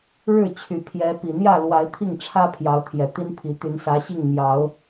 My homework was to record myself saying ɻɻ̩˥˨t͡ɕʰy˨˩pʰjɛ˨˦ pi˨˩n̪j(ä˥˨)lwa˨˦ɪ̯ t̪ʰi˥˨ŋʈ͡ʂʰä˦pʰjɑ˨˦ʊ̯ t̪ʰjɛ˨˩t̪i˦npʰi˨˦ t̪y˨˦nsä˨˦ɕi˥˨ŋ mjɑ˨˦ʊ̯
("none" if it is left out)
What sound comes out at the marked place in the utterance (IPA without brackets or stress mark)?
ä˥˨